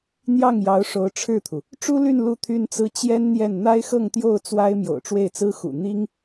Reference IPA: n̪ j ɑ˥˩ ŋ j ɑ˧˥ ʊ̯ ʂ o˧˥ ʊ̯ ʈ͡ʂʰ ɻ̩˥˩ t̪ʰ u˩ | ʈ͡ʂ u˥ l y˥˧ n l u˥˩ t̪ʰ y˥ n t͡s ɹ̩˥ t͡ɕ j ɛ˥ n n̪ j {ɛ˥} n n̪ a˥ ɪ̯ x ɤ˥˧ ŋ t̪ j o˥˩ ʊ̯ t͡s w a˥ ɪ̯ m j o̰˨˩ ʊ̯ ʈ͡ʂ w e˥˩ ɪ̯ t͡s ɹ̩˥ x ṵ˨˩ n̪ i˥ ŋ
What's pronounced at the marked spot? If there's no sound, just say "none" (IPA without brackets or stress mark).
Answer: ɛ˥˩